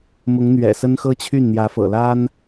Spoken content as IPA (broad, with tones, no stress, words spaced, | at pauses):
mʊ˧˥ŋn̪ɥɛ̰˨˩sə˥n xɤ˥t͡ɕʰy˥˩n n̪jä˧˥fɤ̰˨˩la˥n